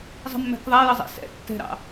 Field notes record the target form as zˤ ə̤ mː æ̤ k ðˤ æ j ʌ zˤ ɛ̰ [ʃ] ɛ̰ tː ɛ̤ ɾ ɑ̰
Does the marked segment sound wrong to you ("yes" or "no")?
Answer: yes